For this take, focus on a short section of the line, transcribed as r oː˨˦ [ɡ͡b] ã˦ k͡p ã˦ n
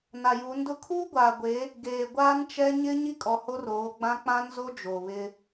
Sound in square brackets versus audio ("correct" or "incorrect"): correct